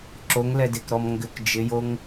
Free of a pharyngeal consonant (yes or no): yes